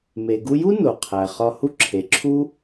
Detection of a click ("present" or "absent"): present